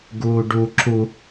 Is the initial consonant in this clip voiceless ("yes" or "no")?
no